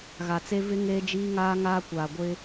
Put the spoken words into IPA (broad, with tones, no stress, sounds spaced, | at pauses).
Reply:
ɣ a˨ t͡s e˦ v ɪ˦ ŋ eː˦ d͡ʒ iː˦ ŋ aː˦ ŋ aː˦ kʷ aː˨ ɡʷ ɪ˦